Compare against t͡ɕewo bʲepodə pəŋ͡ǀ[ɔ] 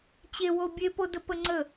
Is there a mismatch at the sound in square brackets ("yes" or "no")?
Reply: yes